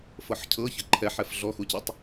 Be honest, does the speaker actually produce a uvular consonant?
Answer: no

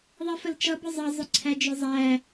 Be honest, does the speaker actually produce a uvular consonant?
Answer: no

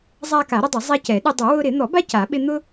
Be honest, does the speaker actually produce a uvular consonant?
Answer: no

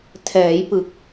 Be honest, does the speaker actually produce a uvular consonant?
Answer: no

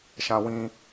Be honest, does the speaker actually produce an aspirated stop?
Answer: no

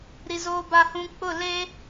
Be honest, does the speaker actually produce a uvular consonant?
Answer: no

